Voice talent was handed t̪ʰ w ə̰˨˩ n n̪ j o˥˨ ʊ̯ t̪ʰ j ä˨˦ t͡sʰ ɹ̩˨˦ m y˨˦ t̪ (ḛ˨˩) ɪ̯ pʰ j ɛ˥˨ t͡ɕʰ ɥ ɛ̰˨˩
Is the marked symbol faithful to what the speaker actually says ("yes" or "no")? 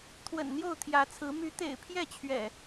yes